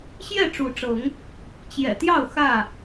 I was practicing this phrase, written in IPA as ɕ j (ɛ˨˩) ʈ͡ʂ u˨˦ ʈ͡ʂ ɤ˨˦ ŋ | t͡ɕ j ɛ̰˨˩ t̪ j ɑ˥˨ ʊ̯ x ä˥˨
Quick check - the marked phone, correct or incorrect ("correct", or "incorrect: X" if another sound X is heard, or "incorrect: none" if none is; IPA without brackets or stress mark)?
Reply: incorrect: ɛ˥˨